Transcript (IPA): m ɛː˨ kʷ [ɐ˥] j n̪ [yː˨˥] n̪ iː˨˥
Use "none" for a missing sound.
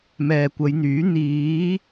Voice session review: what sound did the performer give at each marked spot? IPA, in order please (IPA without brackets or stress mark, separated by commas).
ɐ˨˧, yː˨˥